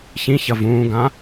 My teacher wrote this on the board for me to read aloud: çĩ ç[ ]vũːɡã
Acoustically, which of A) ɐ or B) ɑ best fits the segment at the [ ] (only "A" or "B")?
A